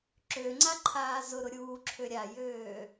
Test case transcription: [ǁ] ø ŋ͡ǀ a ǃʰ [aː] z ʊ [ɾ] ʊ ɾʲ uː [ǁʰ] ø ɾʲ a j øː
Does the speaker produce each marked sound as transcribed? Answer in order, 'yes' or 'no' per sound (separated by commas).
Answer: yes, yes, yes, yes